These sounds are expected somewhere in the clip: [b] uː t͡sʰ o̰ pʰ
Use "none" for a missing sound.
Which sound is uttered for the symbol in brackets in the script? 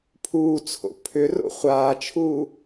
pʰ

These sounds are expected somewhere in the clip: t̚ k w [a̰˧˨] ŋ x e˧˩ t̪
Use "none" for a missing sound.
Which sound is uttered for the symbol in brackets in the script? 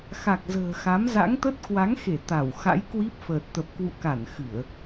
a˨˦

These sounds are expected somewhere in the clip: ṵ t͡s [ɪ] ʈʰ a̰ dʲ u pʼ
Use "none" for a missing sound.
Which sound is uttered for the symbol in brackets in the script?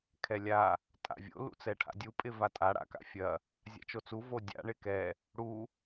ɛ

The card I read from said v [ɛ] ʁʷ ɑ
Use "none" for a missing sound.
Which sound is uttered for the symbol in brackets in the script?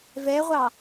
ɛ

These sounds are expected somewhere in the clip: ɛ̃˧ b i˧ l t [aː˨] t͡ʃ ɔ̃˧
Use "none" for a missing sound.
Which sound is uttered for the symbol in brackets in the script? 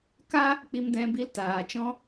aː˨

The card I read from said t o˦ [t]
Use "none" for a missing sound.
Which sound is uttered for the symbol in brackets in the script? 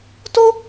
none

